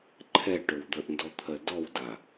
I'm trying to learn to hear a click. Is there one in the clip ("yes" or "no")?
yes